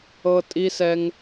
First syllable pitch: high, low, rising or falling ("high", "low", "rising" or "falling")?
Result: high